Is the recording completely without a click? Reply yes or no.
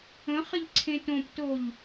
no